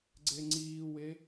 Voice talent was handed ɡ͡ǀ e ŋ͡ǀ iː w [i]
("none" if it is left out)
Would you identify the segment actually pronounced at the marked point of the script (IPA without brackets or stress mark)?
e